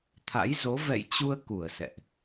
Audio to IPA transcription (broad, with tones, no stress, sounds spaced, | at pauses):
t̪ʰ a̰˧˥ j z o˨˦ v ɛ̰˧˨ j t͡ɕ u˧ ə̯ k u˧˩ ə̯ s ɛ̰˧˨ ʔ